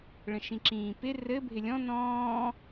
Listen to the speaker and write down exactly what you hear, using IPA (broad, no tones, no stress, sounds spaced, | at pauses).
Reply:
ɭ ə̃ ʃ ĩ ǁ ĩː p ɪ r ɘ bʱ ɪ lʲ ɔ̃ n ɔ̃ː